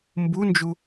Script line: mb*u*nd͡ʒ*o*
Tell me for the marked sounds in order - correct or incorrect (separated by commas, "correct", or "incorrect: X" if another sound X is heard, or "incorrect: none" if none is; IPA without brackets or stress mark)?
correct, incorrect: u